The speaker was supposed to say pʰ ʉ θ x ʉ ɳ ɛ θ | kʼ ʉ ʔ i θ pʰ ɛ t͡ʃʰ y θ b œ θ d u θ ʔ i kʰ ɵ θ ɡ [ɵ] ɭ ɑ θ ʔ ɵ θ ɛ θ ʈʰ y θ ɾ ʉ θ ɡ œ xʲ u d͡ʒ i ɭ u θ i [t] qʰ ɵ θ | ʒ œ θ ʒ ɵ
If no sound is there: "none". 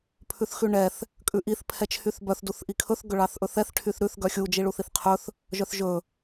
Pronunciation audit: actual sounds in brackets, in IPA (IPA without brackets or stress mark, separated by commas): ɵ, θ